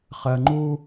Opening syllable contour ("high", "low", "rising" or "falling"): low